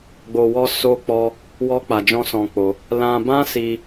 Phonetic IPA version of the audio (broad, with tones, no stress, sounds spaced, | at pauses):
ɡ͡b o˧ w ɔ˦ s o˦ k͡p ɔ˦ | w ɔ˦ k͡p a˧ d͡ʒ ɔ̃˦ s ɔ̃˧ k͡p o˧ | l ã˧ b ã˦ s i˧